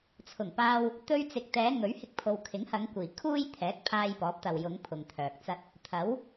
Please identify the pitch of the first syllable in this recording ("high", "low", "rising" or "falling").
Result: low